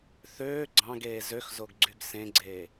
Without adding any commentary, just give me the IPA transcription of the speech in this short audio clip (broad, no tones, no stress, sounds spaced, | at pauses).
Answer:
θ øː ɡ͡ǀ ɑ̃ ɡ eː z ø x z o ɡ ɡ͡ǀ y ɡ s ẽ ɡ͡ǀ eː